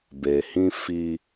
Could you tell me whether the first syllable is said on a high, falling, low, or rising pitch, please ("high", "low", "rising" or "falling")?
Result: low